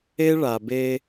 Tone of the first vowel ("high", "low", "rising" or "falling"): high